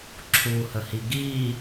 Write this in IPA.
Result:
ǁʰ u h ə h i ɡ i

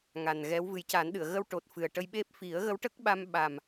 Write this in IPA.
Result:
ŋ a˨˩ n ɣ ɛ˧˥ w v ɨ˨˩˦ j c a˨˩˦ n ɗ ɨ˨˩˨ ə̯ ɣ ə˧ w ʈ o˨˩ t̚ f ɨ˨˩ ə̯ ʈ ə˧ j ɓ e˦˥ p̚ f i˨˩˦ ə̯ ɣ ə˧˥ w ʈ ə˦˥ k̚ ɓ a˧ m ɓ a˨˩ m

